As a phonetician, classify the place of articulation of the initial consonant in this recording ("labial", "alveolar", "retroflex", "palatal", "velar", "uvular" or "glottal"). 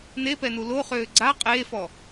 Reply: alveolar